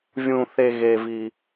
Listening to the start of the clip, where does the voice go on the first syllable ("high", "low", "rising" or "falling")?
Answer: low